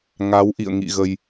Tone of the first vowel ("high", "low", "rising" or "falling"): rising